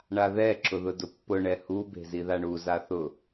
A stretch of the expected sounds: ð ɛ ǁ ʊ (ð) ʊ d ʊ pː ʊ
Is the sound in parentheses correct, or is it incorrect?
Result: correct